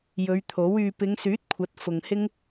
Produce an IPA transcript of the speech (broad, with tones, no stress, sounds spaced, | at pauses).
j ɵ˨˧ ɥ t̪ʰ o˨˥ w yː˧ p ɪ˨˧ ŋ s yː˨˥ t̚ kʷʰ ɐ˨˥ t̚ f ʊ˨ ŋ h ɪ˥ ŋ